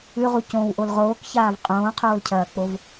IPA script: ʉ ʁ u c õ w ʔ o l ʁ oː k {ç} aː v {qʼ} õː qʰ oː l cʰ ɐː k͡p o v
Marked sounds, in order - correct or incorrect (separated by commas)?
correct, correct